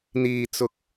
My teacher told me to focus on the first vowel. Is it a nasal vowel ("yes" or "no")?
no